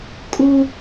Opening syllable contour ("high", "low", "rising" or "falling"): high